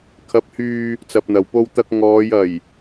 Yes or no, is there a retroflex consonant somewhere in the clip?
no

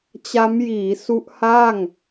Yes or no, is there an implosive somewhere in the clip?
no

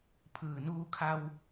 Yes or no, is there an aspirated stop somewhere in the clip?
yes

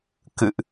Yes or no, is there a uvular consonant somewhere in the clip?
no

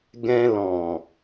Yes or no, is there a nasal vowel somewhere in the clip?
yes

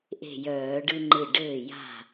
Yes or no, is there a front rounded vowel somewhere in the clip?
yes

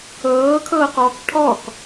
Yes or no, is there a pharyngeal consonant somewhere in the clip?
no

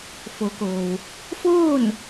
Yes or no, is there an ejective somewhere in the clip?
no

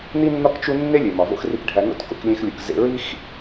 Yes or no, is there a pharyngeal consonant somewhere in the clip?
no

